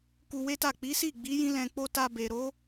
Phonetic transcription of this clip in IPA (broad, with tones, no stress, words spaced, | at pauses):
ku˧we˦ta˦˨ k͡pi˨˦si˦˨ɡ͡bi˨˦ jĩ˦lɛ̃˧k͡po˦ ta˧be˨ɾo˨˦